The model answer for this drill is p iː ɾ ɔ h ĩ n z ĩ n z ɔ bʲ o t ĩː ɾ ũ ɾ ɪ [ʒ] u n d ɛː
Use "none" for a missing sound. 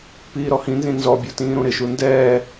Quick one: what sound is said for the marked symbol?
ʃ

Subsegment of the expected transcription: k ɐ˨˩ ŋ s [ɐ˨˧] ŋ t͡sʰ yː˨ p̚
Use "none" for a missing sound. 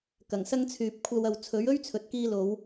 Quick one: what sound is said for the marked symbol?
ɐ˥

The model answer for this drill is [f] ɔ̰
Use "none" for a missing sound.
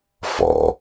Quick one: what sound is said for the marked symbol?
f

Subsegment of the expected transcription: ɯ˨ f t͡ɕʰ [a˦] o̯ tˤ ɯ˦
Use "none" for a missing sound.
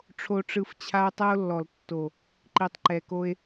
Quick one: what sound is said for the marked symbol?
a˦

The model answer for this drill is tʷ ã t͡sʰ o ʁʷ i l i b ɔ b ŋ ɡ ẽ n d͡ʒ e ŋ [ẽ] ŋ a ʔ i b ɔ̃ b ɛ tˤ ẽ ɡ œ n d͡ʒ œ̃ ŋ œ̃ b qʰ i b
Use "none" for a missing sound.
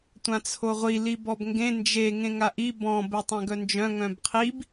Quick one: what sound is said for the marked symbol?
ẽ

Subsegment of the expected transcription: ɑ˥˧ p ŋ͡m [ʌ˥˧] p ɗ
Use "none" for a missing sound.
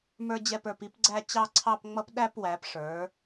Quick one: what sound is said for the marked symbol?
ʌ˥˧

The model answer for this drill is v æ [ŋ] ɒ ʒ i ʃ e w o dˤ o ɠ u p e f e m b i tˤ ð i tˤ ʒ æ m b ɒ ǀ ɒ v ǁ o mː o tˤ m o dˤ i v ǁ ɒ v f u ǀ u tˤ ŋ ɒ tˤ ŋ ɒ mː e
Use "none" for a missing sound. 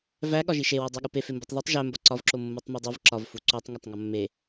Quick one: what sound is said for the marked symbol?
ɠ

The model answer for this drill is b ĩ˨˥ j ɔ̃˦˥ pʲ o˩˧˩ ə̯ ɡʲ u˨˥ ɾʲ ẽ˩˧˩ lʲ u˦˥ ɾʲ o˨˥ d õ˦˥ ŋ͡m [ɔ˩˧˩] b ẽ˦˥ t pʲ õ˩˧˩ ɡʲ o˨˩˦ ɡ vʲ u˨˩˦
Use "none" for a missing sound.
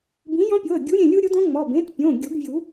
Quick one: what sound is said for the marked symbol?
ɔ˩˧˩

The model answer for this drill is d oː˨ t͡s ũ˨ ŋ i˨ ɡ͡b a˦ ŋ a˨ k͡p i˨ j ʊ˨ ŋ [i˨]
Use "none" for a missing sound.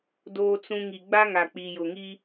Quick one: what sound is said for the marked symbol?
i˦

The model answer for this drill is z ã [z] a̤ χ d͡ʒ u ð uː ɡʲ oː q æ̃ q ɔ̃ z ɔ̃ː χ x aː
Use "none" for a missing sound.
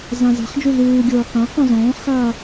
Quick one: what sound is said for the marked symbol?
z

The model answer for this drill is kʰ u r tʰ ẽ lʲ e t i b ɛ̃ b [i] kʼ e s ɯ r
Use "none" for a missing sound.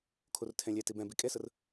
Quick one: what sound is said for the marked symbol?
i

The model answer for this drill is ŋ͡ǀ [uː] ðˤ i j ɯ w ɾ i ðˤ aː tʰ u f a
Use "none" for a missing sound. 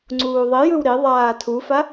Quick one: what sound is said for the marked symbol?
uː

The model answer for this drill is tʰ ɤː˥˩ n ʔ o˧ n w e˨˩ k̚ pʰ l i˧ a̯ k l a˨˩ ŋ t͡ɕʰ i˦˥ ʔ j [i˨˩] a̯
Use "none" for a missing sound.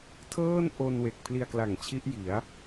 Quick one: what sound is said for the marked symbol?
i˩˦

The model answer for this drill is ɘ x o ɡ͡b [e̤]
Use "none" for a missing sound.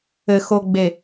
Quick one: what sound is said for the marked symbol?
e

